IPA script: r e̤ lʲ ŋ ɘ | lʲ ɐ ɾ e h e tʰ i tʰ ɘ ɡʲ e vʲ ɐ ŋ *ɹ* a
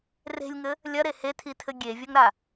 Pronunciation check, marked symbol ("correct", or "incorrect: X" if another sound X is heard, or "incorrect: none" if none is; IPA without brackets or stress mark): incorrect: ɾ